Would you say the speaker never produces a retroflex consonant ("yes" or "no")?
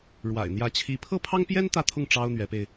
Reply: no